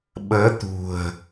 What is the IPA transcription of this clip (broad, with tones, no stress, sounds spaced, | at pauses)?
ɓ əː˨˦ t̪ ṳ˨˩ ə̯